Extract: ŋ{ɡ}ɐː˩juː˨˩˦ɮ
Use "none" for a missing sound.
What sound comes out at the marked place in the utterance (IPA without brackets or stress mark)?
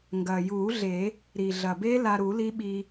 ɡ